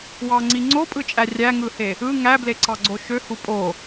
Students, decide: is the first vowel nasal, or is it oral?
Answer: oral